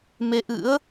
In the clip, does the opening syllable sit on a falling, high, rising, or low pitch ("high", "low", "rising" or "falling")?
rising